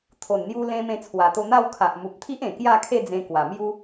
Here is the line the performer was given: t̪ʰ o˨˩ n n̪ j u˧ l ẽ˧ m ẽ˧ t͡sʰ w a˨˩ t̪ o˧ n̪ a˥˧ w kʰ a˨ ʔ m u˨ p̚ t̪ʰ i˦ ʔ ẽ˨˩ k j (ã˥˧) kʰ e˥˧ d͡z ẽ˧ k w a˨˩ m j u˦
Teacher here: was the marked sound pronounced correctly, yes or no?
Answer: no